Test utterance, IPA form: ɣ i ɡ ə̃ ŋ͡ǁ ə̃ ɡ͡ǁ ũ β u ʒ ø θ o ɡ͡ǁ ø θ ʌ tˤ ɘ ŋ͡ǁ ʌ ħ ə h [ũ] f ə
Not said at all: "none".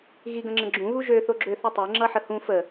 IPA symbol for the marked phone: ũ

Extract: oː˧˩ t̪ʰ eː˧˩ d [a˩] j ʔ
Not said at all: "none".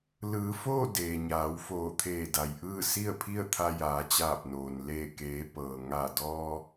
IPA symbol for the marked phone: a˩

